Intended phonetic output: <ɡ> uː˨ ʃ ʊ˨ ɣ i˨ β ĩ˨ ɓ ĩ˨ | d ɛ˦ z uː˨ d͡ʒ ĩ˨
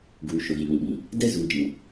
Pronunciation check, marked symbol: correct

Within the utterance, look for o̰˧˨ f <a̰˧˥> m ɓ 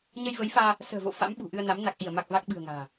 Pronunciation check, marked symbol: correct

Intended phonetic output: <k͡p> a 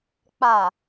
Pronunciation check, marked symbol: correct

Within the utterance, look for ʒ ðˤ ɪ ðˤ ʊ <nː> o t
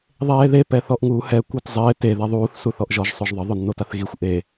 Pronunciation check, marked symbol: correct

